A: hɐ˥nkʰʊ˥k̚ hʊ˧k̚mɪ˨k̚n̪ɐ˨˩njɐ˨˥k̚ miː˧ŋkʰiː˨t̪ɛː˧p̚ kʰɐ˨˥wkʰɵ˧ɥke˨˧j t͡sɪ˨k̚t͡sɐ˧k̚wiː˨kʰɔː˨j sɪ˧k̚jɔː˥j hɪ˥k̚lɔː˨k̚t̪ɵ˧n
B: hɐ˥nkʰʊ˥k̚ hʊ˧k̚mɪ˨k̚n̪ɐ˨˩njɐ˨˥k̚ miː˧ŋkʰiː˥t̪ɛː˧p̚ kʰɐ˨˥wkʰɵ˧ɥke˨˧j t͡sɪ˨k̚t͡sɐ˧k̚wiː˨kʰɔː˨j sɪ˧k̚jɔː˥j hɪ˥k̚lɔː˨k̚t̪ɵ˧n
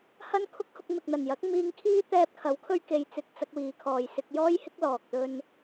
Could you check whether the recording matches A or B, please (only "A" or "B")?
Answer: B